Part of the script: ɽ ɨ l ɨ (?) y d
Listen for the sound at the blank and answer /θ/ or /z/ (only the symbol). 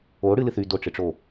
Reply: θ